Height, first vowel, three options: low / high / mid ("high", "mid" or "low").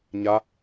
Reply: low